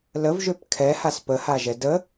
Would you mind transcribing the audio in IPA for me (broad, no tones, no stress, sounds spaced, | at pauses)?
l ə v ʒ ø p kʰ ɛ h a s p ə h a ʒ ɛ d ə